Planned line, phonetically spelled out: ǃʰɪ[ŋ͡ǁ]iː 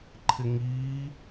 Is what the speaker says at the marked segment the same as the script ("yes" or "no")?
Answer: no